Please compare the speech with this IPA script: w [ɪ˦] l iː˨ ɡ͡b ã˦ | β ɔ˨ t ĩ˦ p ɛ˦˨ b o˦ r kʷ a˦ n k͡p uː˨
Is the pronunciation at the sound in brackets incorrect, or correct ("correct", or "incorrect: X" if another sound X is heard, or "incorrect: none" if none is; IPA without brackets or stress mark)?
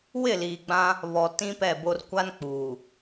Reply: incorrect: ɪ˦˨